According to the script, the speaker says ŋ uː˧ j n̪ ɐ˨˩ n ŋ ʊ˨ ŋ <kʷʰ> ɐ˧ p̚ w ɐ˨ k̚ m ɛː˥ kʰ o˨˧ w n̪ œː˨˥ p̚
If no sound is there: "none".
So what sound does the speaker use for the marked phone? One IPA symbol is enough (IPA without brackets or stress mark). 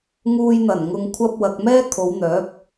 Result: kʷʰ